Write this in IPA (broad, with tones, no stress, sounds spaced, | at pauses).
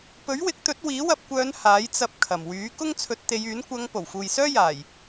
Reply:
p ɵ˨˥ ɥ w ɪ˨˥ k̚ t̪ ɵ˨˥ t̚ w iː˨˥ w ɐ˧ p̚ kʷ œː˨˧ n h aː˨˥ j t͡s ɐ˧ p̚ kʰ ɐ˨˩ m w yː˨˥ k ʊ˥ ŋ t͡sʰ ɵ˨˥ t̚ t̪ e˨˧ j yː˨˥ n kʷ ɐ˨˧ ŋ p o˨˩ w f uː˨ j s œː˥ j aː˨˩ j